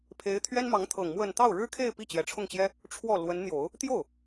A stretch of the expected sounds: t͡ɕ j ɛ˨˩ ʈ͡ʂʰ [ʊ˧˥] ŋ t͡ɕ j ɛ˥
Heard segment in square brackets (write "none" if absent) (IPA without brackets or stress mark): ʊ˥˩